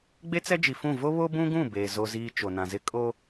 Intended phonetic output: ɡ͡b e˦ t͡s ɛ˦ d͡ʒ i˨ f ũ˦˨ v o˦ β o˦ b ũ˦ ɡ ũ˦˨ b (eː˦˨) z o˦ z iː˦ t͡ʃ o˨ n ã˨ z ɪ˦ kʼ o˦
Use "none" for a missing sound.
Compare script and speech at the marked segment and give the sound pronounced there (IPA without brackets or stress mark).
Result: eː˨